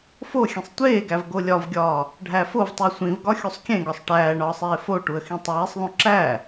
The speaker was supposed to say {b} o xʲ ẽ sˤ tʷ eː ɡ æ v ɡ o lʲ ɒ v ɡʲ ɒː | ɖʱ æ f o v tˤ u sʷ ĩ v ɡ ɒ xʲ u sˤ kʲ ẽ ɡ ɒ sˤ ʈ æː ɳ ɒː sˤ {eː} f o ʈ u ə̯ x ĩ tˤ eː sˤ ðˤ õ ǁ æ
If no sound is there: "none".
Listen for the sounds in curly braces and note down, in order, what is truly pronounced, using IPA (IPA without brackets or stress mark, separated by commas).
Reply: f, eː